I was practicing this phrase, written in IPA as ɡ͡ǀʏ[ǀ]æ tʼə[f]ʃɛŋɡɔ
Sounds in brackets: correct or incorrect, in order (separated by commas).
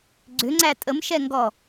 incorrect, incorrect